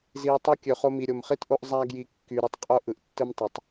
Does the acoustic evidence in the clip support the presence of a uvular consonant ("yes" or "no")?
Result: yes